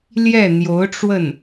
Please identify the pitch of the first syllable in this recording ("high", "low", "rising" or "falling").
falling